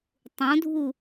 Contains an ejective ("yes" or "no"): no